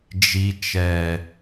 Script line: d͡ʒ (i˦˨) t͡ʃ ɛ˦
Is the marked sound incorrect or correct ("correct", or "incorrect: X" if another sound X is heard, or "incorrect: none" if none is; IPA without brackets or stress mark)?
incorrect: i˦